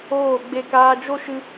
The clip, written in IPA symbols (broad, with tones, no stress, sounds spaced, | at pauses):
oː˦˨ ɡ͡b e˧ k aː˧ d͡ʒ o˦ ʃ ɨ˧